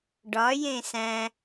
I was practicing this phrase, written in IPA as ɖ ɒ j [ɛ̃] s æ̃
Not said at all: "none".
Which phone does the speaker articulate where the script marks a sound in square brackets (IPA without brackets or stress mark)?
ẽ